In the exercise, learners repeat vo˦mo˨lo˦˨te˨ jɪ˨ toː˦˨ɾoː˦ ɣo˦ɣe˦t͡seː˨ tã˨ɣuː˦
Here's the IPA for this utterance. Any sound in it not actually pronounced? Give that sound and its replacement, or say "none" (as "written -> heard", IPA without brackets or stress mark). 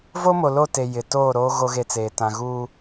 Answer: none